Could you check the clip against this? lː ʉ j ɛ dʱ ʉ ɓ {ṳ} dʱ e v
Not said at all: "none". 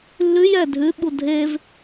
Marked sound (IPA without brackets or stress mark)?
u